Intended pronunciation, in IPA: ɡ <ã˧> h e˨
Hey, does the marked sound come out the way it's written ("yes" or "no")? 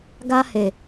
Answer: no